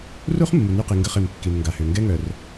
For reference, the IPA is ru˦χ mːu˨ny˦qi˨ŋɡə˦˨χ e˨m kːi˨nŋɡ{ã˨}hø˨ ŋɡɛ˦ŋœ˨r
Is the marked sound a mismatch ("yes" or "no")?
yes